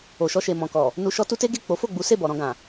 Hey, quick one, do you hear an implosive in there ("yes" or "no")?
no